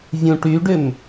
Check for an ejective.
absent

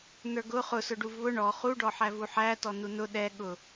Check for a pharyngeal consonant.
present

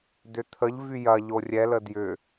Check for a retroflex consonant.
absent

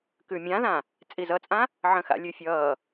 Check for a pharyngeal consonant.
present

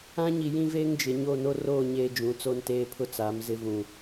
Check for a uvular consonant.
absent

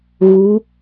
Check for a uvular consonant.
absent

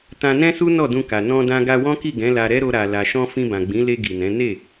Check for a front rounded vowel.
absent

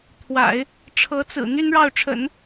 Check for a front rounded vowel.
present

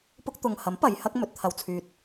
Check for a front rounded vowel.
present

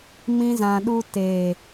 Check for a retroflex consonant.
absent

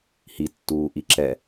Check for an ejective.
absent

